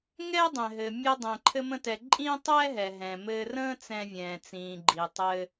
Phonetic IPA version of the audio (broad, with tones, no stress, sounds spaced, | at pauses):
ŋ ɛː˥ dˤ ɛ̃˩ ɦ ɘː˩ mʲ ɘ˧ dˤ ɛ̃˩ ǃʰ ɘ˧ m ə̃˧ t ɛ˩ ǃʼ ĩː˥ tˤ ɛː˥ ɦ ɛ˩ ɦ ɛ̃ː˩ m ɘː˧ r ə̃ː˥ t͡s ɛ̃˧ vʲ ɛ̃ː˩ t͡s ĩː˩ ɡ͡ǃ i˩ tˤ ɘ˧